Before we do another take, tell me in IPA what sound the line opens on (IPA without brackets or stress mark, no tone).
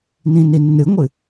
n